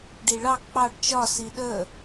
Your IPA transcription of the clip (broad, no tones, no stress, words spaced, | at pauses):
ɖiɭɑ k͡pɑɖ t͡ʃɒ siɗə